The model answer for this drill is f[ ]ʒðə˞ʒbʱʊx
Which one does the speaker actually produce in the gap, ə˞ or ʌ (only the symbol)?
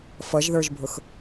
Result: ʌ